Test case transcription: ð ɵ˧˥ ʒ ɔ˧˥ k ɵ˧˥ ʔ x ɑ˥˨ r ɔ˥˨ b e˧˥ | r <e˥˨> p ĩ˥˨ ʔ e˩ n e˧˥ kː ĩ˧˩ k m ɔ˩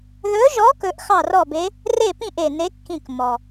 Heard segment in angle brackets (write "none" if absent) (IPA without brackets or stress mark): e˥˨